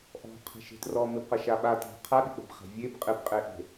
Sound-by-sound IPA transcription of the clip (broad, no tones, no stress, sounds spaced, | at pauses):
ʔ ɔ̤ qʰ e̤ ʃ e̤ t r ɔ m ɪ b q ɐ ʃ a ɓ a t æ̤ qʰ a ɗ ɪ k͡p e̤ b χ æ̤ vʲ e b qʼ ɪ b qʼ e ʔ e̤